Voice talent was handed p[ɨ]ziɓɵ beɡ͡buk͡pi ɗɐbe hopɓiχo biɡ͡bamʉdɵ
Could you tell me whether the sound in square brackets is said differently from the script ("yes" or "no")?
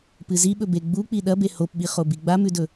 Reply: no